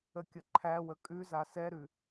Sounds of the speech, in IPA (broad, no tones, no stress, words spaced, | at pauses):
əkʲəǃʰæwə kʼʉza sɛɾʉ